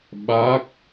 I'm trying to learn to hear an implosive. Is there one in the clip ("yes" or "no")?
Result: yes